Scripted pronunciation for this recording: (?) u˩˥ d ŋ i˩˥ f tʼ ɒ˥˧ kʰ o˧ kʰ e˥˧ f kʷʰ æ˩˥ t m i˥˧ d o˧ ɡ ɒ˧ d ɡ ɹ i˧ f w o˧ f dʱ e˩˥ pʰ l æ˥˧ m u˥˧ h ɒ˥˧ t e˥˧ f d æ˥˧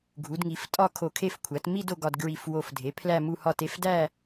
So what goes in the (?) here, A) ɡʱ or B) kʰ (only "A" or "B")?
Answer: A